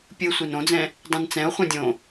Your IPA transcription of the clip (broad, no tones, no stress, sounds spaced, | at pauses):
pʲ ɯ sʷ e n õ d͡z ɛ̃ | dˤ ĩ n t͡s ɛ̃ o̯ χʷ ɛ̃ dʲ õ